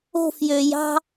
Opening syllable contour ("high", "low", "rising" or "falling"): falling